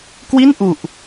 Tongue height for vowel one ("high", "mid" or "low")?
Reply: high